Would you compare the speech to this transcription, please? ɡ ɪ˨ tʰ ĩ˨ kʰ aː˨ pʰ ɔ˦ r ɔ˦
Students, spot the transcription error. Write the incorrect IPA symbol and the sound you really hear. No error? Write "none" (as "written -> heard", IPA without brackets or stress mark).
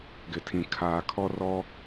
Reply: pʰ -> kʰ